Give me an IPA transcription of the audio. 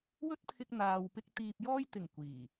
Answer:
w ɵ˥ t̚ pʰ ɪ˧ k̚ n̪ aː˨ w p ɪ˧ k̚ t̪ iː˨ p̚ j ɔː˧ j t̪ ɪ˨˩ ŋ kʷ iː˨˩

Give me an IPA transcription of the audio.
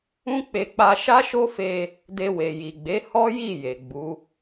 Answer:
ũ˦ k͡p e˧ k͡p a˧ ʃ a˦ ʃ o˦ f e˧ | d e˧ w e˨ j i˨ ɡ͡b e˨˦ h ɔ˦ j i˦˨ j e˨ ɡ͡b u˨˦

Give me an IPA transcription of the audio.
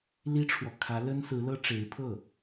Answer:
l i˥ ʈ͡ʂʰ w ɔ˨ kʰ ä˧˥ l ə˥ n s ɹ̩˧˥ l ɤ˥ ʈ͡ʂ e˧˥ ɪ̯ pʰ ɤ˥˩

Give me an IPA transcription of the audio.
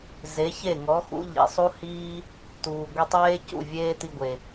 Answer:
z e˨˦ ç e˦˨ ŋ ɔ˨˦ x ṵ˦ ʎ ḭ˨ sˤ u˦ h iː˦ | t uː˨ ɡʷ i˧ tˤ eː˦ c ṵ˦˨ vʲ eː˦ t i˧ ɡʷ e˨

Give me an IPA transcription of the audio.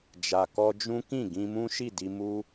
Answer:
d͡ʒ a˨ k ɔ˧ d͡ʒ ũ˦ k ĩ˦˨ ɡ ĩ˧ m ũ˦ ʃ i˦˨ d i˧ m u˦

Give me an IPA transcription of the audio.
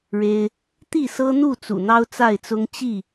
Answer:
ɻ e˦ ɪ̯ | t̪ i˥˨ s ɤ˦ n̪ u˥˨ t͡s ṵ˨˩ n̪ ɑ˦ ʊ̯ t͡s a˥˨ ɪ̯ t͡s ʊ˦ ŋ t͡ɕ i˥˨

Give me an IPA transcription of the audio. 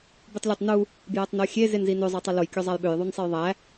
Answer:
b y tˤ lʲ æ tˤ n u | b j æ tˤ n o xʲ e z e n z i n ø zˤ ɑ tˤ ɯ l o j kʲ o zˤ æ j ɓ ø j ðˤ u n sˤ e j ðˤ æ

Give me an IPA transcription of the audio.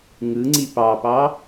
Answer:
ŋ ɯ ŋ͡ǀ i p ɑ p ɑ

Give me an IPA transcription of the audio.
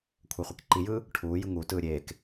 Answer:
kʷʰ ɛ χʷ i k ǃ i j ɯː | ʈʰ uː j ɯ ŋ u t ɯː ɾʲ eː k

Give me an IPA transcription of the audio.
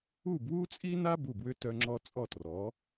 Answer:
u˥˩ b w u˥ t͡sʼ i˥ n a˥ b u˥˩ b w ʏ˥ t œ˧ ŋ͡ǁ ɔ˧ t͡sʼ ɔ˥˩ t r ɔ˩˥

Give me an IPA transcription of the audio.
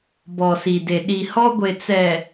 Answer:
b ɔ˨ s i˨ d e˨ ɗ i˨ h ɔ˦ ɡʷ e˨ t͡s ɛ˨

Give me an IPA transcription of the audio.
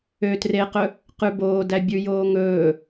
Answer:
ø t r e q ɵ | q ʉ b oː d æ bʲ ʉ j oː ŋ ɵː

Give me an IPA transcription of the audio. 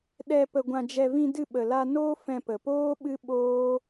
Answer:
ɗ ɛ˧ p ə˧ ɡʷ ã˧ d͡ʒ ɛ˧ v ĩ˧ d ɨ˧ ɓ ə˨ l a˧ n oː˦ f ɛ̃˧ p ə˨ p oː˦ ɓ ɨ˦ ɓ oː˦

